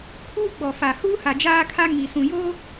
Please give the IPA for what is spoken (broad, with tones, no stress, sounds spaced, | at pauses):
kʰ uː˦ ɡ͡b ɔ˨ f a˨ h uː˦ h a˨ d͡ʒ aː˦ kʰ a˦ ŋ i˨ s ũ˨ j o˦